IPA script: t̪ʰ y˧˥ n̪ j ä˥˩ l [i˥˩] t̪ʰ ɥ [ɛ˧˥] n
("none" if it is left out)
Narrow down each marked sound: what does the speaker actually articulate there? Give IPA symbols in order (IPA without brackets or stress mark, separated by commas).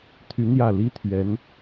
i˥, ɛ˧˥